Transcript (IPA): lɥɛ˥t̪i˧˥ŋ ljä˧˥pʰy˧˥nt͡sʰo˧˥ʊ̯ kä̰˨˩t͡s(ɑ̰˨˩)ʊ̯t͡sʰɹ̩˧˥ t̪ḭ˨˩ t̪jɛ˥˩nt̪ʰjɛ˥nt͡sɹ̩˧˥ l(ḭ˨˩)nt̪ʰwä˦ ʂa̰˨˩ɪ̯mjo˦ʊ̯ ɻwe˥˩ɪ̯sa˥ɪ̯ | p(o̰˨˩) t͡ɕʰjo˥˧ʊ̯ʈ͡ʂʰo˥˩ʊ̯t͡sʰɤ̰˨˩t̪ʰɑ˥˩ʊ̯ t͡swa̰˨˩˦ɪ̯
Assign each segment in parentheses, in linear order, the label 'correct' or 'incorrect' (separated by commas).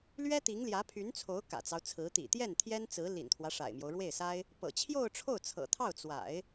incorrect, correct, incorrect